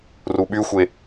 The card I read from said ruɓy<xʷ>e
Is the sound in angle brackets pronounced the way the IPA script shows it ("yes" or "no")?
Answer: yes